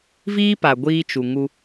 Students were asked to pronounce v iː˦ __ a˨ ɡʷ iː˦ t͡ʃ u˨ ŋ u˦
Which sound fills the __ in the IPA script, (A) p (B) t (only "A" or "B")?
A